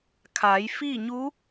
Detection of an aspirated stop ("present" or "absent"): present